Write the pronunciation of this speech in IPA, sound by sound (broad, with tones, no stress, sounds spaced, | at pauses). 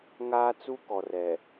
ŋ aː˦ t͡s u˦ k ɔ˨ r ɛ˨